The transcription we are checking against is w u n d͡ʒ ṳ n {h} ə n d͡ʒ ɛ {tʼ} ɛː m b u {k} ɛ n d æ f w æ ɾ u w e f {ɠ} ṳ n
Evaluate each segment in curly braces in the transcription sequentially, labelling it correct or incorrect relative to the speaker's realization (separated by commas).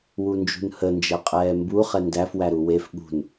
correct, incorrect, incorrect, correct